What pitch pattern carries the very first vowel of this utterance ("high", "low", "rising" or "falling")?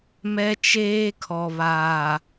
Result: high